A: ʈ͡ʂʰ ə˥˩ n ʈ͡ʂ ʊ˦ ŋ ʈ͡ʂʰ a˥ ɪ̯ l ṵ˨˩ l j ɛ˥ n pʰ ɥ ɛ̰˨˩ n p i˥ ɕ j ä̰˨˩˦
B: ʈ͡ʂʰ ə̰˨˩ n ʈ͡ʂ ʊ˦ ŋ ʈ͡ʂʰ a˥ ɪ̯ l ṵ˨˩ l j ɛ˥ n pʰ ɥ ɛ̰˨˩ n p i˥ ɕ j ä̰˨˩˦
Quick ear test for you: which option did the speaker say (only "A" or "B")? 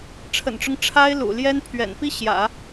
B